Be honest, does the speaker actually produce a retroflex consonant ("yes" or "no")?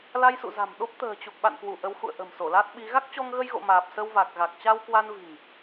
no